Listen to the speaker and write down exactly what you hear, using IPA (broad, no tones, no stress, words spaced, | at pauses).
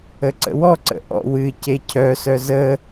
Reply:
əǀə̰wɔǀə̰ ʔɔ̰ wɨ cecʰœsœ zə